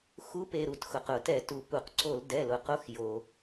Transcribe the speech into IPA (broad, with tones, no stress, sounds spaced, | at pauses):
x u˧˥ p e˩˧˩ ɾ u˧˩ t x ʊ˩ q ʊ˧˩˧ t ɛ˧˩˧ t u˩ p u˩ q ǀ o˧˩˧ l d ɛ˩˧˩ l ʊ˩ q o˧˥ x j o˩